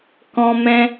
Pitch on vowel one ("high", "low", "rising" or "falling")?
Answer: high